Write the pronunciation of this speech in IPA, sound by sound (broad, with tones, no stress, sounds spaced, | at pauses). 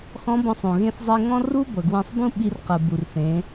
x ɔ̃˧˥ b ɔ̃˧ sˤ õ˩ ɣ ẽ˧ θ zˤ e˧ ŋ ɔ̃˥ r u˥ b ɤ˩ ɡ w ẽ˧ sˤ b ũ˥ ɓ i˧ r q ɯ˩ b u˩ r θ ẽ˩˧